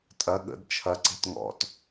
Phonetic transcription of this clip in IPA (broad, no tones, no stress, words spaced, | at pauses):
tʼɐ ɠə̰d t͡ʃʰɐ ǀe̤tŋɔ̰t